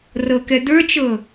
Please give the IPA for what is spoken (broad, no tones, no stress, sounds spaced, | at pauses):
r ɤ k ɛ d̪ ə˞ t͡ʃ ɤ